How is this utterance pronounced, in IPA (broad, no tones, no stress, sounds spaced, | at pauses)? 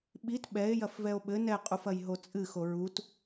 ɓ i t ɓ ɛ e̯ j ɐ f v ɛ o̯ ɓ ɘ n ɛ qʼ u f ɐ j ɦ o t͡sʼ ɨ x o ɹ u t